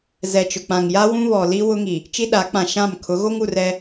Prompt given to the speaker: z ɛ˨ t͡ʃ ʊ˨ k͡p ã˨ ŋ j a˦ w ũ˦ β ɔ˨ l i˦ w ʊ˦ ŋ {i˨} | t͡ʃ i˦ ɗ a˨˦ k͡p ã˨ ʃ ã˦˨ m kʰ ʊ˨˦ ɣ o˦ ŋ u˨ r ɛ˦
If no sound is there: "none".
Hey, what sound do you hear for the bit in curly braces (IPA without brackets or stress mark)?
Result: i˨